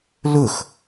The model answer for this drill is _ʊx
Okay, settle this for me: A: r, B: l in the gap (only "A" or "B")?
B